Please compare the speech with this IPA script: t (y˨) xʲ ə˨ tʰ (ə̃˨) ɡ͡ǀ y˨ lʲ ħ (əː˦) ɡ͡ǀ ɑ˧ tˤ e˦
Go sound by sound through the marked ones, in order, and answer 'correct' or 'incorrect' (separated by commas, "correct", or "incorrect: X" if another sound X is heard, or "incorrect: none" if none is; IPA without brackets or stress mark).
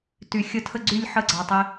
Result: correct, incorrect: ə˨, incorrect: ə˦